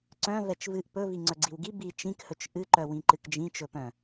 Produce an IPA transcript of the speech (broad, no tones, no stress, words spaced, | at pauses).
ǀœ̃ vɛt͡ʃvɨʔ pɵ viŋ͡ǀœɡ͡ǀiwɡi bi t͡ʃĩkhɵt͡ʃ ʔɨǃœwĩ ǃɨkd͡ʒĩt͡ʃɵpœ̃